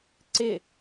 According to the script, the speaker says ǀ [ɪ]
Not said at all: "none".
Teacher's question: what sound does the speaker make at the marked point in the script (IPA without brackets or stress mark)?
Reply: ɪ